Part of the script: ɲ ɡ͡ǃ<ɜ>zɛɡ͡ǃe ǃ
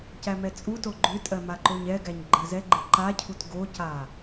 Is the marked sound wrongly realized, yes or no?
no